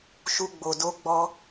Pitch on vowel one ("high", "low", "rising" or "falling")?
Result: high